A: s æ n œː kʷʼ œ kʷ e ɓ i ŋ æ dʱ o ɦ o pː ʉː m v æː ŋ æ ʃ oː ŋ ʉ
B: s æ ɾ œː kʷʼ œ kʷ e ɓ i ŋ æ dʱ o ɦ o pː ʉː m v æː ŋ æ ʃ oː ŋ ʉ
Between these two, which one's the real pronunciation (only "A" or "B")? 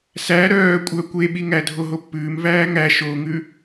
B